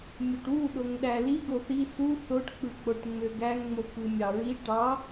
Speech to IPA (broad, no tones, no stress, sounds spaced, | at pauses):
mʲ o ʈ w u ɗ o ŋ ɗ æ l i ɡ o θ i s u θ o ʈ k͡p ɯ k͡p o ʈ ŋ͡m ø ɡ æ ŋ ŋ͡m o k ɯ mʲ ɑ ɹ i ʈ ɑ